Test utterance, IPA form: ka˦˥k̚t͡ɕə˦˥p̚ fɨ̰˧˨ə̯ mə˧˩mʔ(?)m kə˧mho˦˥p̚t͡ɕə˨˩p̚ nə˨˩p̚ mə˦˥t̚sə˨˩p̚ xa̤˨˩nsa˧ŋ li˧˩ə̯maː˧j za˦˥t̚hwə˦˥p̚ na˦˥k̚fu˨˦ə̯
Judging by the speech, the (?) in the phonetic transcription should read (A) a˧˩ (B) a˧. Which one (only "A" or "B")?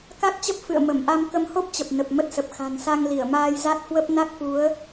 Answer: B